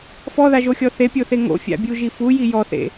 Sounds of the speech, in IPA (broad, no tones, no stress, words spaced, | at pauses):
fɔðaʒoxʲɔ θepʲoθe ŋo̰fʲa̰bʲuʒi fuji jɔθḛ